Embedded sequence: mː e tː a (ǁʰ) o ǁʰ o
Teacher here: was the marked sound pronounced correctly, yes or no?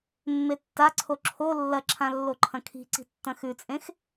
no